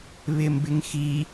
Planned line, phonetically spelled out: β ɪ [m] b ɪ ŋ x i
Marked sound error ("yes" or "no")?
no